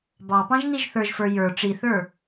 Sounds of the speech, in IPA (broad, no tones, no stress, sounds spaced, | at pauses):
b ɑ p ɑ̃ ʒ n i ʒ θ ə˞ ʒ f ə˞ j ə˞ ʈ͡ʂ i θ ə˞